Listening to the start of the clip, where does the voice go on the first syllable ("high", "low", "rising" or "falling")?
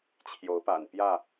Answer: rising